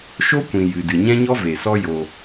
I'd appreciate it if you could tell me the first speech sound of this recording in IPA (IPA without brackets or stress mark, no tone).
ʃ